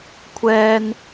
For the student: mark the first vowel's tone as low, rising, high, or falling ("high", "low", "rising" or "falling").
high